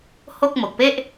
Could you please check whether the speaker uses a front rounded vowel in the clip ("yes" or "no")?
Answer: no